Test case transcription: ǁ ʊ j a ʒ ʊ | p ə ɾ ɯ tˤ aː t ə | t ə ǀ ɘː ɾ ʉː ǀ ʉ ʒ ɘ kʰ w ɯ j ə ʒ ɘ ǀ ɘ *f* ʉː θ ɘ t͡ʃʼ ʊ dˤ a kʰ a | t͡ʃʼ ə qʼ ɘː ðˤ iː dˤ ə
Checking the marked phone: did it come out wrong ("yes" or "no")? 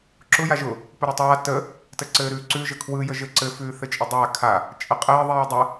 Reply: no